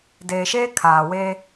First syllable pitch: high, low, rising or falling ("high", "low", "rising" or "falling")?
low